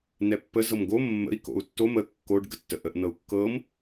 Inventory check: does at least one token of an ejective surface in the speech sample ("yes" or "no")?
no